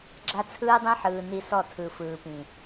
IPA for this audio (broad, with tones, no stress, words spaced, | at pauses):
ɡ͡ǁa˦t͡sʰɯː˦dˤĩ˦ ħɯː˨ ni˦ sɔ˦˨tʰɯ˨fɯː˨pĩ˨